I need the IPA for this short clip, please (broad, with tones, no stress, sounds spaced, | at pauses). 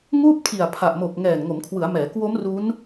ŋ uː˥˩ p̚ tʰ i˨˩ a̯ pʰ a˨˩ ʔ m o˨˩ k̚ ŋ ɛː˨˩ n ŋ o˩˦ m kʰ w ɯ˩˦ a̯ m ɛː˩˦ k w o˦˥ m r u˦˥ n